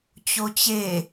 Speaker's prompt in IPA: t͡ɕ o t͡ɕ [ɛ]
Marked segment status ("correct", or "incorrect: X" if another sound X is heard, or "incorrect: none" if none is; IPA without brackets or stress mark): incorrect: e